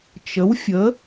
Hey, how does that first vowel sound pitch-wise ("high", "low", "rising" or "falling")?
rising